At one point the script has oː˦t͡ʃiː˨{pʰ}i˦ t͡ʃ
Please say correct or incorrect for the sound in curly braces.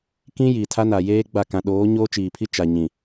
correct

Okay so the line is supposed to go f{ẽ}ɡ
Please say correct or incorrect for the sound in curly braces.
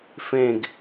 correct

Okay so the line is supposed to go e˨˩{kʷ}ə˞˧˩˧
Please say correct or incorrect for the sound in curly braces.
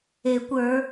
correct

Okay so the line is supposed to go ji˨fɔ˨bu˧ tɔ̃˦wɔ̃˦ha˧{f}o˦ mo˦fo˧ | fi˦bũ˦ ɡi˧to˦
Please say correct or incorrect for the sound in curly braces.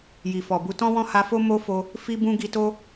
correct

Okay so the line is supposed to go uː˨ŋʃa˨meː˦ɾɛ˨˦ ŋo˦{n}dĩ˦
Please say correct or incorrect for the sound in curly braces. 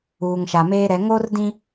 incorrect: r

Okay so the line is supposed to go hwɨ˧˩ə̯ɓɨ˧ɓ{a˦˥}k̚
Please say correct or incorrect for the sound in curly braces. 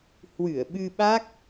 correct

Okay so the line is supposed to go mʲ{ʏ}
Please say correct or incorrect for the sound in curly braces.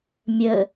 incorrect: ə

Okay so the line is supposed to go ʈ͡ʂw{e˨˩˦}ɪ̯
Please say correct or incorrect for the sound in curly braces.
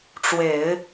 correct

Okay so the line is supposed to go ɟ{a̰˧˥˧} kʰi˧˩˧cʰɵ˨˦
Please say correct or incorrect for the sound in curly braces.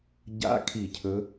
correct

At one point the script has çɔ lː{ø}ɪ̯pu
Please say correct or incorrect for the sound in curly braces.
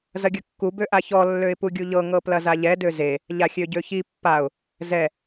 correct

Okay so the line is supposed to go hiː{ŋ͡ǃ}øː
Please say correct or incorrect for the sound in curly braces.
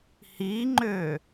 correct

